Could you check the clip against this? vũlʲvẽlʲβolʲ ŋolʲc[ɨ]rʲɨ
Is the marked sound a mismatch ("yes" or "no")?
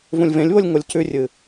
yes